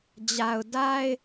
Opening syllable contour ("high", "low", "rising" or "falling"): low